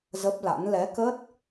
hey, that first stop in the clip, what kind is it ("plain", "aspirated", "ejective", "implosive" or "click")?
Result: plain